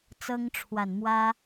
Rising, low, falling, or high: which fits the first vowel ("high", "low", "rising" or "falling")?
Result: high